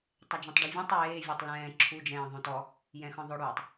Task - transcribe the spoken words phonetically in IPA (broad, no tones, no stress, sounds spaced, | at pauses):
tˤ ɛ d͡ʒ ɔ̃ tˤ ɖ ɛ vʲ ɔ̃ tˤ j eː vʲ e tˤ l ɛ̃ː ǁʰ u d͡ʒ ɛ̃ː ðˤ õ t ɔ | j ɛ̃ x ɔ̃ ðˤ ɵ ɽ uː tˤ